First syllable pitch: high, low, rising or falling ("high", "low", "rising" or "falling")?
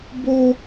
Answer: high